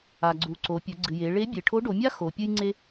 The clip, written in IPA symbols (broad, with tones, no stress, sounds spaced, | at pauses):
a˩ ɡ͡ǀ u˩˧ ǀ o˩˧ pʲ ɵ˩˧ ɡ͡ǀ ɨ˩ j e˩˧ ɭ e˧˥ bʲ e˩ ʈʰ o˧˥ ɖ o˩˧ mʲ a˥ x o˩˧ pʲ ɨ˥ j ŋ͡ǀ e˥